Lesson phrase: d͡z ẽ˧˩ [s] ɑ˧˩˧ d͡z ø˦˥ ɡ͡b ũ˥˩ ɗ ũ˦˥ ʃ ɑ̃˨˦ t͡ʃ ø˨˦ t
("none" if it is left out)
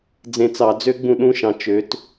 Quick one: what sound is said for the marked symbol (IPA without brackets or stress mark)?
t͡s